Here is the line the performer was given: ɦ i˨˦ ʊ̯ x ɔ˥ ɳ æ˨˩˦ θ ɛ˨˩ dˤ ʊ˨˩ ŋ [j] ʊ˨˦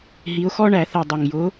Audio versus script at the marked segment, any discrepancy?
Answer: no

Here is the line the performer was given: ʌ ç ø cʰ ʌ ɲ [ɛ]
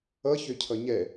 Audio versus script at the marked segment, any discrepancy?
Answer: no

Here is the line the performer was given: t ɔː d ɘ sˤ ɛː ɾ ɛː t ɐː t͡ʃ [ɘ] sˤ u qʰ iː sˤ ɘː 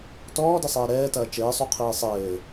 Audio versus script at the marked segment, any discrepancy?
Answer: yes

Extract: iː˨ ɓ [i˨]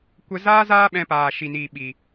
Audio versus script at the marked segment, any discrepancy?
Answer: no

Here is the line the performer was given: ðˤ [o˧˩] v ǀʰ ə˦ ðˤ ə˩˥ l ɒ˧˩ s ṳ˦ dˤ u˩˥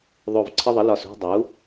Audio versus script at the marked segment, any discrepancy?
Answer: no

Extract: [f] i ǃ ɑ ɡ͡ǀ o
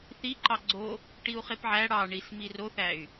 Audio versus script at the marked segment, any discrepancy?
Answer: yes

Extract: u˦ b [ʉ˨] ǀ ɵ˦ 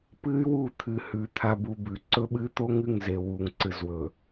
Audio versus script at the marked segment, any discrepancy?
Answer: no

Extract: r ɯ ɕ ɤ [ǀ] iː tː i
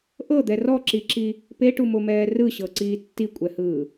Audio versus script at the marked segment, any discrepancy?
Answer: no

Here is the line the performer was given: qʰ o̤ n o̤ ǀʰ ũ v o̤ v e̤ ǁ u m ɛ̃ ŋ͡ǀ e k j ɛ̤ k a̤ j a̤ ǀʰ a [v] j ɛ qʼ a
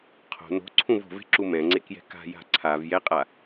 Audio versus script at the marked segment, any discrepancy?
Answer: no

